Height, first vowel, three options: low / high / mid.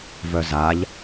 mid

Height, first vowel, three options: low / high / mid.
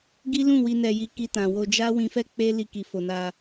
high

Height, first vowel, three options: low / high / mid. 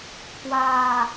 low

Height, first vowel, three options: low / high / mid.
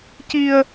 high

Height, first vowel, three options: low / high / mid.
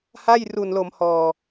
low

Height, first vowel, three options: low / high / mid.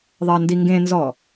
low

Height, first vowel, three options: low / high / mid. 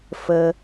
mid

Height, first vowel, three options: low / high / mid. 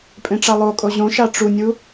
mid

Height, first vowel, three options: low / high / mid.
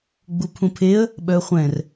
high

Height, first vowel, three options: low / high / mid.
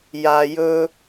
low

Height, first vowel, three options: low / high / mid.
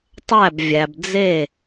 low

